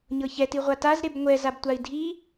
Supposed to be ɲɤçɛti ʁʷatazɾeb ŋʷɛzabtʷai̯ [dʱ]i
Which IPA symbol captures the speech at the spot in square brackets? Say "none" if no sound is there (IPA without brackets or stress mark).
dʱ